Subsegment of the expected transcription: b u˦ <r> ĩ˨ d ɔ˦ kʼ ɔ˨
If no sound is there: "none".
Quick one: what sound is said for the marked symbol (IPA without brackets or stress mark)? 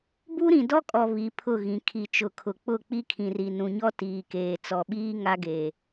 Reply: ɾ